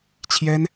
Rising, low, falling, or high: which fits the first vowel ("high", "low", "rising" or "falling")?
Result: high